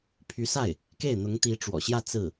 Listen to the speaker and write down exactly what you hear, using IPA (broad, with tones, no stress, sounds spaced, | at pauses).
pʰ y˧˥ s a˥˩ ɪ̯ | k e˥˩ ɪ̯ n̪ ʊ˧˥ ŋ t̪ i˧˥ ʈ͡ʂ w ɔ̰˨˩ ɕ j ä˥˧ t͡s ɹ̩˥˩